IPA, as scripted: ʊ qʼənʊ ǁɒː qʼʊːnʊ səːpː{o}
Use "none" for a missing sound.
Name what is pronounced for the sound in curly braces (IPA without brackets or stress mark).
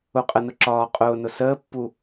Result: u